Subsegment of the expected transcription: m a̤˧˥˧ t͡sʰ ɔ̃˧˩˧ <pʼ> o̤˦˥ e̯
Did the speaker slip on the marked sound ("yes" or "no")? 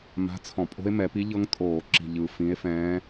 no